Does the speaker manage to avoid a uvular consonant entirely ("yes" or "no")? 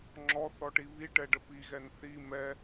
yes